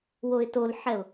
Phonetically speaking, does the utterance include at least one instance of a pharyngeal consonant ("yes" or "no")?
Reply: yes